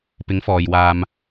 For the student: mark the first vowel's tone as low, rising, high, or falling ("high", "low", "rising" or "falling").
rising